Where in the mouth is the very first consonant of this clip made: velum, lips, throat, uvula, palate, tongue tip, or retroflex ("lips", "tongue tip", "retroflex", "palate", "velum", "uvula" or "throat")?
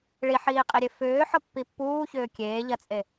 retroflex